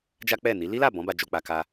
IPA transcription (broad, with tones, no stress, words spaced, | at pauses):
d͡ʒa˦k͡pɛ˦˨ni˨˦ li˦la˦˨ bɔ̃˨˦ba˧d͡ʒo˧k͡pa˧ ka˧